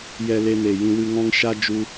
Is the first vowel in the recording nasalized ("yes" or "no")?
no